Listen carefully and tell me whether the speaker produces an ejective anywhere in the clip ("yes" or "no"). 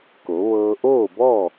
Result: no